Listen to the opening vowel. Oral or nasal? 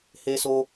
oral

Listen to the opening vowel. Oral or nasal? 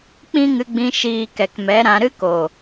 nasal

